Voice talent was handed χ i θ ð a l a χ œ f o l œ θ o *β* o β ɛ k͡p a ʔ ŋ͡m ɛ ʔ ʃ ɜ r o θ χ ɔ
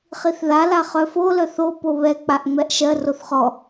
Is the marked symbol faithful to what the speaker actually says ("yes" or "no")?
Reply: no